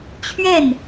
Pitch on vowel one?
falling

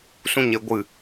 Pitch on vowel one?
high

